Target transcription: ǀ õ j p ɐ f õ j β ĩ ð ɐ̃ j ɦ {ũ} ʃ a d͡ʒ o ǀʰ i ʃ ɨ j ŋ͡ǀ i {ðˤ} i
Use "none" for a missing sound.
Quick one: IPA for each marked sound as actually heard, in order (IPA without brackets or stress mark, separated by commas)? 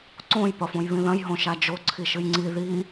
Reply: õ, ð